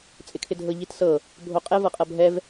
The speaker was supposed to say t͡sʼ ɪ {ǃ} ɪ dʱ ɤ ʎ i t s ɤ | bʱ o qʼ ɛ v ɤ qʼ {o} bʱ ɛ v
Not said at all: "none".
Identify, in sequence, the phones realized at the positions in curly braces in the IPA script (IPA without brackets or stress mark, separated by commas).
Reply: kʰ, ɤ